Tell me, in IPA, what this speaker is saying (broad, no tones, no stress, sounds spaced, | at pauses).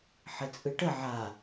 ħ ɘ t͡sʼ ɯ ʈ ə ʕ a